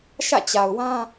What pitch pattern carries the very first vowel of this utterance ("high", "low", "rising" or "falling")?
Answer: falling